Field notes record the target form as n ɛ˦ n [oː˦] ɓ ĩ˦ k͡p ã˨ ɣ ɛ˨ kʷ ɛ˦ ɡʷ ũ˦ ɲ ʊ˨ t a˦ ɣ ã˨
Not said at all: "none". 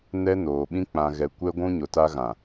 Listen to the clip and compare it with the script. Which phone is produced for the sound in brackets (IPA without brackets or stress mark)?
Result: oː˨